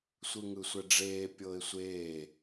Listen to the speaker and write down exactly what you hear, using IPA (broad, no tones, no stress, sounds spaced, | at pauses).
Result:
sʷ ɯ ŋ ɯ sʷ ɛ ɖ͡ʐ eː pʲ ɤː ɪ̯ sʷ eː